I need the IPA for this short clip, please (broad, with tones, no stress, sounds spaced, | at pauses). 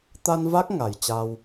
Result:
t̪ a˧ n v a˦˥ k̚ ŋ a˨˩ j t͡ɕ a˧ w